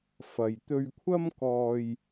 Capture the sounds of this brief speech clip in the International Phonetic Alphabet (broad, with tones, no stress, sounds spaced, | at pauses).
f ɐ˨ j t̪ ɵ˧ ɥ kʷʰ ɐ˥ m k ɔː˧ j